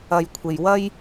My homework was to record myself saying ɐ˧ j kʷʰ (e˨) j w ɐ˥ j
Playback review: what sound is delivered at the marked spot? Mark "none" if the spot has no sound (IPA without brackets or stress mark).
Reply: e˨